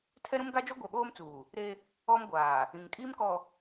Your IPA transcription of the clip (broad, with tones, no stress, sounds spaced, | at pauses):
tʰ ɛ˦ ɾ ũ˦ m ɡ a˦ d͡ʒ ɔ˦ ɡʷ ɛ˨ ɓ oː˦ m t͡s uː˨ | ɾ e˦ | ɔ˦ m ɡʷ aː˨ | ĩ˨ ŋ kʼ iː˦ m k ɔ˨